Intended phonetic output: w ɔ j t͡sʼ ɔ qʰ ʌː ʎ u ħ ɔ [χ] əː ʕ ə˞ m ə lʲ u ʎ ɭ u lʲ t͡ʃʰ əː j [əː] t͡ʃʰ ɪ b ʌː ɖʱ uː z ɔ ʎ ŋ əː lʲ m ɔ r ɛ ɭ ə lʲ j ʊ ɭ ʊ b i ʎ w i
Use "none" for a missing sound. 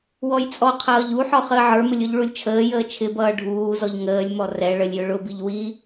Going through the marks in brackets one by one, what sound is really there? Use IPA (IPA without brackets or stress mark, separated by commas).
χ, əː